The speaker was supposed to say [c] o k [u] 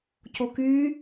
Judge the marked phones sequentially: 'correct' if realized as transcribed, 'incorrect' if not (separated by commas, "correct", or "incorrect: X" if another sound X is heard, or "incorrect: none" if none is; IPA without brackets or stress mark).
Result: correct, incorrect: y